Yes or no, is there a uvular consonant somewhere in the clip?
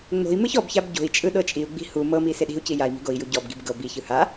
no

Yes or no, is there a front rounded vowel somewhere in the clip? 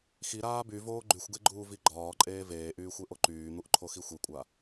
yes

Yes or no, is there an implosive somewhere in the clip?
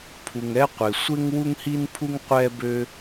no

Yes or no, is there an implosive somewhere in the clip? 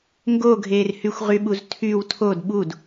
yes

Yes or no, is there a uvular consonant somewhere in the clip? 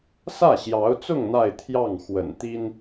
no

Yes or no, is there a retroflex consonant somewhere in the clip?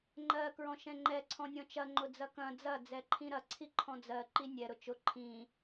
no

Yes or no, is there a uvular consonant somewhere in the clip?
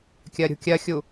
no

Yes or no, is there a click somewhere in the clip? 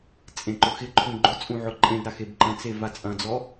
yes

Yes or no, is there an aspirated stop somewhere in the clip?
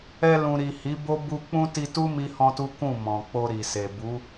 no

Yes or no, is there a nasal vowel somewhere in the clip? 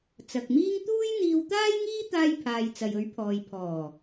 no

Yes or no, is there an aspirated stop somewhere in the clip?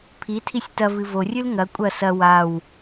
yes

